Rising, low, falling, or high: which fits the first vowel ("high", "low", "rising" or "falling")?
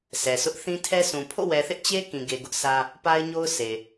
low